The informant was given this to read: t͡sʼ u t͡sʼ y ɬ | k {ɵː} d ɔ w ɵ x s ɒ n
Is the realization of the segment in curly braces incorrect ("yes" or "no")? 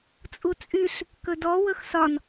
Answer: yes